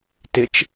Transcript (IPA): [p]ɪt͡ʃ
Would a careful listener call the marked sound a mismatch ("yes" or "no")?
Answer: yes